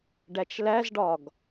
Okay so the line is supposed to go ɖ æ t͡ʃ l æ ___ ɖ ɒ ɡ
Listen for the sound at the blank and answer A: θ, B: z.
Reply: B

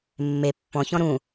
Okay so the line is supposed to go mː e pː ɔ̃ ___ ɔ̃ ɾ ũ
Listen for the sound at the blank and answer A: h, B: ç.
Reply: B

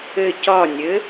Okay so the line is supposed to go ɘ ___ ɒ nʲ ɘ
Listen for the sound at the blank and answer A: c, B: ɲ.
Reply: A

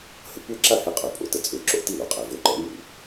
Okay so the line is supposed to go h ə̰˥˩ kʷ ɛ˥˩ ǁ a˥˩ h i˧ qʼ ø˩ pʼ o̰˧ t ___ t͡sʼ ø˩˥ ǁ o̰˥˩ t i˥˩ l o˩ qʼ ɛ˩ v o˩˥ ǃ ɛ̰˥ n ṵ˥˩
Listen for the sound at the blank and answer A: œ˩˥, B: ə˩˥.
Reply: B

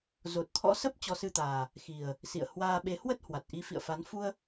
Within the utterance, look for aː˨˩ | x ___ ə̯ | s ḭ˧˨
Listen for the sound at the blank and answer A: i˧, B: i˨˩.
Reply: B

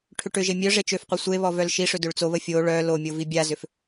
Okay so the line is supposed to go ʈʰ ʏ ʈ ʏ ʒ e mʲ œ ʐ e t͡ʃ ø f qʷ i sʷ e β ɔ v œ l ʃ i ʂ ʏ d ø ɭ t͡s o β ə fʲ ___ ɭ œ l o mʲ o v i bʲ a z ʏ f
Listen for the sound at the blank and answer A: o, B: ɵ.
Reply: A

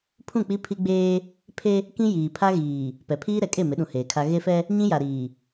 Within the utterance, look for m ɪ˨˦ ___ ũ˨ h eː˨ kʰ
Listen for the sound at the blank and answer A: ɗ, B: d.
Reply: A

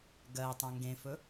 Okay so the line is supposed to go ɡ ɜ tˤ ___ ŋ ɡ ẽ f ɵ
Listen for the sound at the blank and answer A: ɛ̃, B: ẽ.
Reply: A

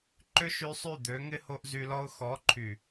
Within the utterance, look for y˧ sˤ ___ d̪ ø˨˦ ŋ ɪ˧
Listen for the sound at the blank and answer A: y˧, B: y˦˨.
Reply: B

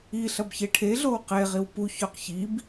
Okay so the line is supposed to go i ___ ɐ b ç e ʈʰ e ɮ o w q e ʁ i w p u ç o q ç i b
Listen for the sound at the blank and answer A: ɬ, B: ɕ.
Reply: A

